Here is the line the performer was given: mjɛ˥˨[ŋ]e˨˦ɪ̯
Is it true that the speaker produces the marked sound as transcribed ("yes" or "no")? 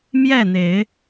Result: no